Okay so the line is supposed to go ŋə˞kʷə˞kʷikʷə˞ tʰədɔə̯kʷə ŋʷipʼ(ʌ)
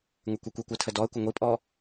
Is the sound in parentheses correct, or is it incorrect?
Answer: incorrect